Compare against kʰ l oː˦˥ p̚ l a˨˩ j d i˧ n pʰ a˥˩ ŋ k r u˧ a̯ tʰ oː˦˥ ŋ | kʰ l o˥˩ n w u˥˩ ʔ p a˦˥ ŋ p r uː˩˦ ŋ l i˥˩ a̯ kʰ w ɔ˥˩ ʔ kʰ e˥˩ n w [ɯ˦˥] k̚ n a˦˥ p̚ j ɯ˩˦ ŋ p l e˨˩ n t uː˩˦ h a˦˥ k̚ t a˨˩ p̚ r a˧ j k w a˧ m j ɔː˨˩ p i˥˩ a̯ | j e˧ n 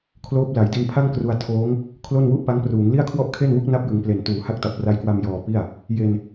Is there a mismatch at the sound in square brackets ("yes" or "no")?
yes